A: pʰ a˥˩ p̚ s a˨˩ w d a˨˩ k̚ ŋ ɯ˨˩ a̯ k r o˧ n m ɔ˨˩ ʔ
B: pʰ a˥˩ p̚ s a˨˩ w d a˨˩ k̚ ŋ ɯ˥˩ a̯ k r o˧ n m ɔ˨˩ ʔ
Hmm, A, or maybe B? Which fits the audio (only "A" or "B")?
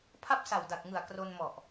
A